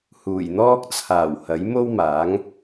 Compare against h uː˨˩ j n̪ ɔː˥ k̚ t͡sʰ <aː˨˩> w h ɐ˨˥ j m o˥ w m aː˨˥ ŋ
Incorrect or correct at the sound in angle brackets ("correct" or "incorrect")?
correct